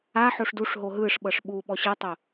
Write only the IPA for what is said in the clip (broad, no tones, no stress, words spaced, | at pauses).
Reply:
aħoʂ duʂɦo ɦɯʂɓɤʂ ɓu ɓɔɕɤtˤo